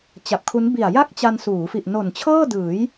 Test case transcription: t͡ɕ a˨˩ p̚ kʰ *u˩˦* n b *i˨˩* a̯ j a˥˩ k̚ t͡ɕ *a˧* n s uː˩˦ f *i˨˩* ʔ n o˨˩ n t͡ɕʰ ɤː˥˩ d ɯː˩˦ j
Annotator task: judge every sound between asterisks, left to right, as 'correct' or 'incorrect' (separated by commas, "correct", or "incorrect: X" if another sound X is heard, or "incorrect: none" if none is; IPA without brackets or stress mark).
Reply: incorrect: u˦˥, correct, correct, correct